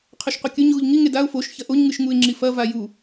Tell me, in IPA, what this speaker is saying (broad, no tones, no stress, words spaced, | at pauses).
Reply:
qʰɵʃqʷɨkʲɵɲ ɣuʎŋi ŋedaʊ̯ foʃ çɐʔoɲŋɨʃ ŋuɪ̯ŋ͡ǁifɐ vaju